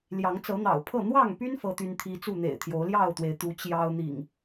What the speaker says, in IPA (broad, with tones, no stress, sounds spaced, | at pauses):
l j ɑ˨˦ ŋ t͡s ɤ˨˦ n̪ ɑ̰˨˩ ʊ̯ pʰ ɤ˥˨ n̪ w ɑ˥˨ ŋ p y˦ n f ɤ˦ t̪ y˦ n t̪ʰ i˦ t͡s u˥˨ n̪ ḛ˨˩ ɪ̯ t̪ʰ j o˨˦ ʊ̯ l j ɑ˥˨ ʊ̯ t̪ w e˩ ɪ̯ t̪ u˨˦ t͡ɕ j ɑ˦ ʊ̯ n̪ ḭ˨˩ ŋ